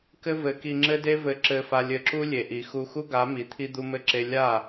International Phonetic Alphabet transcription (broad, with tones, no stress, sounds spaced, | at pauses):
k ɘ˦ v ɘ˨˦ k i˧ ŋ͡ǁ ɘ˦ d e˦ v ɘ˧ ǁ ɘ˧ f a˧ lʲ ɘ˧ ǁ u˦ lʲ e˨ ʔ i˨ x u˧ x u˦ ɡ a˨˦ m i˨ t̪ʰ i˦ d̪ u˦ m ɘ˦ ǁ e˦ lʲ a˦˨